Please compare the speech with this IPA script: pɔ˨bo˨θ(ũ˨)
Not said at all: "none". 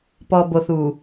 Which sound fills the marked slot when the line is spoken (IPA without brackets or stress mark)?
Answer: u˨